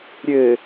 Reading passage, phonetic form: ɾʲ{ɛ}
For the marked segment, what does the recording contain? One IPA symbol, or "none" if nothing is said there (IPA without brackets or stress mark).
ɘ